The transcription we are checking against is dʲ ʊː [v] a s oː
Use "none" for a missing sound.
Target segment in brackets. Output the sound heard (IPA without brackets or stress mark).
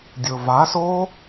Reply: v